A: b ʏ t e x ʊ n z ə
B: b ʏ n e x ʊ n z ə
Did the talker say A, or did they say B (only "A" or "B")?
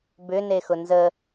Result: B